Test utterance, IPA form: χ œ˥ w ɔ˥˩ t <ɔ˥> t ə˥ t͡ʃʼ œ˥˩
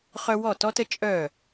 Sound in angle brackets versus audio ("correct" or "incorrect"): correct